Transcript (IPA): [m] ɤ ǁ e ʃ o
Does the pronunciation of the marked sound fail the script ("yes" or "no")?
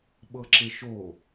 yes